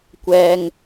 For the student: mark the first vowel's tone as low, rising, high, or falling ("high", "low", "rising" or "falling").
low